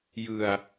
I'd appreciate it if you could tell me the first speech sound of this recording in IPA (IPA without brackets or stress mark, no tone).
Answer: j